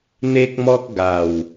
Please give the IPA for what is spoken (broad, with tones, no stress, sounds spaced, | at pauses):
n̪ e˦ k̚ m ɔ˦ k̚ ɡ a˨˩ w